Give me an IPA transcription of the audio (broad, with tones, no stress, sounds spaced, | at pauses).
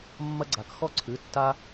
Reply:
mː ɐ˦ ɡ͡ǀ a˩˧˩ k x ɔ˥˩ ǀʰ ɨ˩˧˩ tː a˦